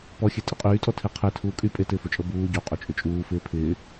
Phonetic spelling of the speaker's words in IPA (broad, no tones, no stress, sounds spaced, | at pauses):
p ɔ xʲ e tʼ ɪ qʼ yː tʼ ɔ tʰ e qʰ e tʰ uː kʼ y pʼ e t ɪː f o t͡ʃʼ ɤ b uː ɟ o qʼ o t͡ʃʼ ʏ t͡ʃʼ uː f ɪː pʰ ɪː